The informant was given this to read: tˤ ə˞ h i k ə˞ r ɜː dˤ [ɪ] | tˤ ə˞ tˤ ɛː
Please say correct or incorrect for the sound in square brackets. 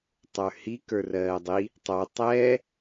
incorrect